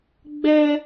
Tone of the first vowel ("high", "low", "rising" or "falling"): high